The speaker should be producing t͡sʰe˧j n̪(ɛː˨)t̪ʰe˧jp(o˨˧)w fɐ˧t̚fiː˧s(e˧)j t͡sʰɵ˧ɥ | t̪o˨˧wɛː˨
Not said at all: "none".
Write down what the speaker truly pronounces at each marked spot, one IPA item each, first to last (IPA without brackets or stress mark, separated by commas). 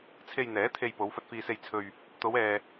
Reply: ɛː˨˥, o˨˧, e˧